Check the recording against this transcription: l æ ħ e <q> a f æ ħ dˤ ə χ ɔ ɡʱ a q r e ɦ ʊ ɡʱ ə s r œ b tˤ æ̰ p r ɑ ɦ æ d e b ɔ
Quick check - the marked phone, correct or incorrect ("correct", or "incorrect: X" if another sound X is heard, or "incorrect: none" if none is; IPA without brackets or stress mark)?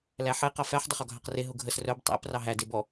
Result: correct